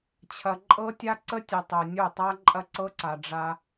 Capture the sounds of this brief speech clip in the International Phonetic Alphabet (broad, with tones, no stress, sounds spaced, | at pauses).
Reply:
t͡ɕʰ ɐ˨ ǃʼ ɤ˦ tʲ a˦ ǀ ə˦ tʲ ɐ˨ tˤ o˨ nʲ o˦˨ tˤ a˦ ǃʼ ɐ˦ ǀ ɤ˦ ǀ a˨ ɖ͡ʐ a˦